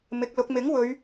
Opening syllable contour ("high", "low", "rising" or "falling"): rising